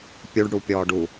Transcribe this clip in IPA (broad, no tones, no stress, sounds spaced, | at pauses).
pʲ u ɖ ɽ u pʲ ɔː ɖ u